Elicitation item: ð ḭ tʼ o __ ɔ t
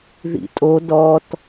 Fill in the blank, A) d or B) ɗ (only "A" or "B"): A